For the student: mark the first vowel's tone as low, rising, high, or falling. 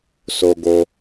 high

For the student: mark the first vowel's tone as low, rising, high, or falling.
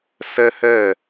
high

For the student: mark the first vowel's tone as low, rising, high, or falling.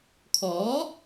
rising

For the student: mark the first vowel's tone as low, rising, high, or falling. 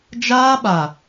high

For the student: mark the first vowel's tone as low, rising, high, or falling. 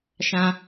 high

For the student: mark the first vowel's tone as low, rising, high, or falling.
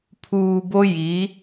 low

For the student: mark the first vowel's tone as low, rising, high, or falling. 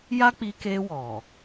high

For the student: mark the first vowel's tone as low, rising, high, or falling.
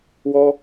high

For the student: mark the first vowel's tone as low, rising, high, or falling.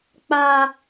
high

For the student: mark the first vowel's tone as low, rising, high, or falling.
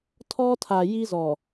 high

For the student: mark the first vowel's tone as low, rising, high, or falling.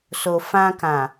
low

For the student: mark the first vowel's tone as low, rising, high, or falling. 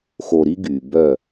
low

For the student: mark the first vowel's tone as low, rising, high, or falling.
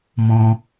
high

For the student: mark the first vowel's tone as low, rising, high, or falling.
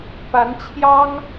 rising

